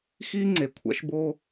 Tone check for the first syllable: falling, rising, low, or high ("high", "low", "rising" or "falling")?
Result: high